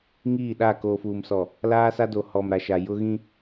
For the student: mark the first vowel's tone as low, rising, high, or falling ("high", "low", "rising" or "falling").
falling